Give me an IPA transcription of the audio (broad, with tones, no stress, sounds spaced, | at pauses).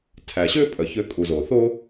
tʰ æ˩ ɕ ø˥ pʼ œ˩ ç ø˧ kʼ u˩ z o˩ θ o˥